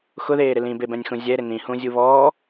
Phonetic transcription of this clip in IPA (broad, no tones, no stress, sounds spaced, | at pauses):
x ʊ ð eː ɾ ɪ l ĩ b e b ɛ̃ nʲ x ũ zʲ ɛ ɾ ɪ n ĩ h ũ zʲ u β ɔː